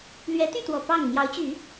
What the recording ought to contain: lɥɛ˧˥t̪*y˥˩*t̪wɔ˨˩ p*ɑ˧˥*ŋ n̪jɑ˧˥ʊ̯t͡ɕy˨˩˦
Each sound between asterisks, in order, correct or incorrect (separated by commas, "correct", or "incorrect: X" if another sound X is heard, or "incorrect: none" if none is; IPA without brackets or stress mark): correct, incorrect: ɑ˥˩